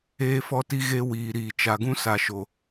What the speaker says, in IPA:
eː˦ f ɔ˦ t i˦ ɣ e˦ w iː˨ ɾ iː˨ t͡ʃ a˨ ɡ ũ˦ s a˨ ʃ o˨

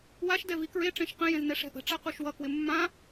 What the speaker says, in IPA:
w a ʃ d ɛ v i k ɹ e ʈ͡ʂ ẽ ʃ q ə̃ j ẽ z n ɛ ʂ ɛ̤ ʔ ə̤ ʈ͡ʂ a q u ʃ w ʌ k w ɪ mː ã

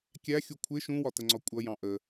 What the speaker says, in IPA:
kʲ æ xʲ u kʷʰ ɪ ʃ ũ w ɒ t ə ŋ͡ǀ ɒ kʷʼ ʌ j ɑ̃ ʔ ə

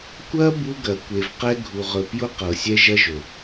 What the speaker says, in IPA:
kʷ ɐ˦ b u˦ ɡ ɐ˨ kʷ e˨ v q ɛ˦ ɡʱ u˨ ʁ ɵ˨ p j ʊ˦ q ɤ˨ sʲ ɛ˦ ʒ ɐ˦ ʒ ɵ˨

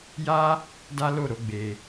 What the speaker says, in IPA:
j a˦ | d a˦ l o˦˨ ɾ o˨˦ ɡ͡b e˧

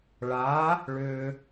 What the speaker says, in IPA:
ɭ a˨˦ | ɭ ʏ˨

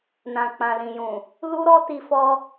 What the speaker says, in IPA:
n ã˨ k͡p ã˨ l ĩ˨ j ũ˨ | l u˦ ɾ ɔ˦ t i˦ f ɔ˦

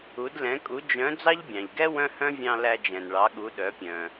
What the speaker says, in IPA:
u˧˥ d l ɛ̃˧˥ kʼ u˧˥ d͡ʒ œ̃˧˥ d͡z ɑ˥ ʎ bʲ ɑ̃˩ ʎ ɡ ɛ˥ w œ̃˥ h œ̃˥ vʲ ɑ̃˧ l æ˧ d͡ʒ ɛ̃˩ n ɭ ɑ˩˧ ɠ u˩˧ ɗ œ˩˧ pʲ œ̃˩

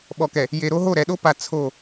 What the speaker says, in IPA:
ɓ ɔ˨ k ɛ˨ | j e˨ ɾ o˦ ɦ o˦˨ ɾ ɛ˨ ɗ o˦ p a˨ t͡sʰ o˦˨

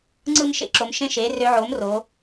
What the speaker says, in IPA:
ŋ͡ǀ ɯ˥˨ m ʃ ḛ˧˥ ǁ o˩˥ m ʃ ẽ˥˨ ʃ e˩˥ r ø˧˥ ʕ o˩˥ m r o˩˧

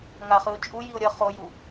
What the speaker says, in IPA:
ŋ a χ ɯ ʊ̯ t͡ʃʼ u j i ʊ̯ ɾʲ ʌ χ o j u

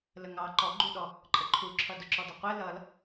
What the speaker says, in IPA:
l ə ŋ ɑ ǃ ɔ ɡ͡ǃ u ɗ ɔ | ǃʼ ə ǃʰ u ǁʰ ʌ d ʊ ǁ ɔ d ʌ qʷ ɛ l ʌ l

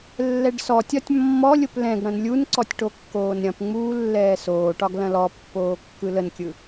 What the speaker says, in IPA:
lː ɛ ɖ s ɔ tʲ ɒ tʲ mː ɔ lʲ ʊ p l ɛ̃ ɡ ɽ ɐ̃ n lʲ u n ǀ ɔ tʲ ʈ o kː oː n ɾʲ ɐ̃ p ŋ͡m uː lː ɛː s oː ʈ ɒ ɡ l ɐ̃ l ɔ pː oː kː ɯ l ə n kʲ ɯ

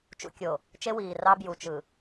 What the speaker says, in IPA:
t͡ʃ ṵ˨ kʲ o˨ | t͡ʃ e˦ w iː˨ r ɑ˦ b j u˨ t͡ʃ ɯ˨

